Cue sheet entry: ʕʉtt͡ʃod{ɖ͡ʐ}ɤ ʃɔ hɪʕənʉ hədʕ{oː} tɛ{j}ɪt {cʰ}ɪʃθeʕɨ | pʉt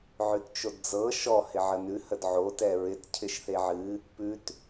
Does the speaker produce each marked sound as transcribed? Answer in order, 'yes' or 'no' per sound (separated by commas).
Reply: no, no, no, yes